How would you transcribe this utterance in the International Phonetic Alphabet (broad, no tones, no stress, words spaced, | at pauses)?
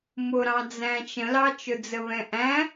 mʊɾɑ̃d͡zæ̃ t͡ʃə̃lɑ t͡ʃʊd͡zəβɛ̃ʔæ̃